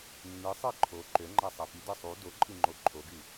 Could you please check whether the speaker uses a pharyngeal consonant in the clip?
no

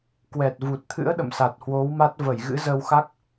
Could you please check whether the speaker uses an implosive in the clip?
yes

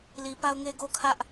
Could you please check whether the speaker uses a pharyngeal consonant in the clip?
no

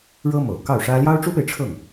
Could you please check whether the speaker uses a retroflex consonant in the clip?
yes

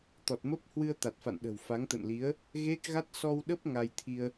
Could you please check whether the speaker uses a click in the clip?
no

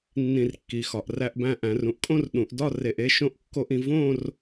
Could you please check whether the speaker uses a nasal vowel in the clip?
yes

